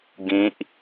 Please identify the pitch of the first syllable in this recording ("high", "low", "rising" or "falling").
rising